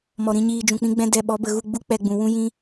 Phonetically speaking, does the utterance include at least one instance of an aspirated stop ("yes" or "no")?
no